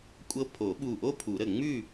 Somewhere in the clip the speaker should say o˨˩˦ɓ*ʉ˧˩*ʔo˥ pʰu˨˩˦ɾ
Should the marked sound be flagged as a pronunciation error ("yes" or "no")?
yes